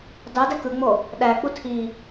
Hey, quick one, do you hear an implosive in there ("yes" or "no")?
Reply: yes